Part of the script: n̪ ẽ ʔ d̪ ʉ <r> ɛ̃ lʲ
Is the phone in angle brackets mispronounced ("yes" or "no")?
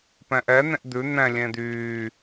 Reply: yes